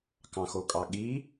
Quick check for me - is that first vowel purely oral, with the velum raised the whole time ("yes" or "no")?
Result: no